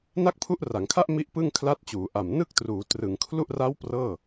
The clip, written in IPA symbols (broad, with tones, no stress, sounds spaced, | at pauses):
n a˥˩ k̚ pʰ u˦˥ ʔ r a˩˦ ŋ kʰ a˥˩ ʔ m i˥˩ ʔ p ɯ˥˩ ŋ kʰ l a˦˥ t̚ t͡ɕ uː˩˦ ʔ a˨˩ m n ɯ˥˩ k̚ t r uː˩˦ t r ɯ˩˦ ŋ kʰ l u˥˩ ʔ r a˦˥ w p r ɤː˥˩